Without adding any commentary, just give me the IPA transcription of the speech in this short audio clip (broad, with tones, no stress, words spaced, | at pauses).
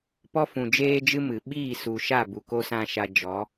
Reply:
pɔ˦fũ˨d͡ʒeː˦d͡ʒɨ˦ mɨ˨ ɓiː˦˨ su˨ʃa˦˨ bu˨ko˦sã˦ʃa˧ d͡ʒɔ˨˦